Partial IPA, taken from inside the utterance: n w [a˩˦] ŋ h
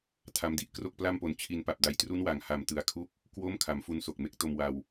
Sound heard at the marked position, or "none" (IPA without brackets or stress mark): a˩˦